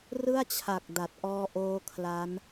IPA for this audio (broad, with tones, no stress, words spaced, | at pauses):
rɯ˥˩a̯t͡ɕʰa˨˩k̚ da˨˩t̚ʔɔː˦˥ʔoː˦˥ kʰla˦˥n